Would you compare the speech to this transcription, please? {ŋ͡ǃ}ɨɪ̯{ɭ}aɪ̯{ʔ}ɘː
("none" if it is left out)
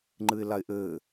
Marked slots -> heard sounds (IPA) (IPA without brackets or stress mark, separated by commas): ŋ͡ǃ, l, ʔ